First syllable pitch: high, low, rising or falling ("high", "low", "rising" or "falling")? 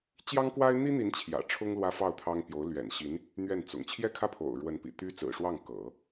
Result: high